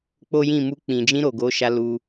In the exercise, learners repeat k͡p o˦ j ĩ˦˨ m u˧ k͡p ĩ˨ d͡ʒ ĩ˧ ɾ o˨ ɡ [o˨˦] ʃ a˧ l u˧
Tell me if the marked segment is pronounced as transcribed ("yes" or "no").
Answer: yes